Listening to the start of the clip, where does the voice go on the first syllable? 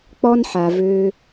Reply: high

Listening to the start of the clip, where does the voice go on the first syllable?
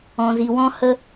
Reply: low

